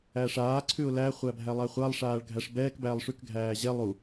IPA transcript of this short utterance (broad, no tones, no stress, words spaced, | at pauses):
æʂaːǀʰʉʊ̯ læχʷæ bʱælˠæχʷalˠʂaːɭ ɡʱæʂbɛːkbæːlˠ ʂʉkɡʱæː ʑɛ lˠu